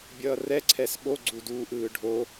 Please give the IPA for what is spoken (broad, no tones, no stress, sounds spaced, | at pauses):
bʲ ʌː r ɛ ǀʰ ɛ s ɓ o ɡ͡ǀ u d uː ʔ ɯː ɖʱ o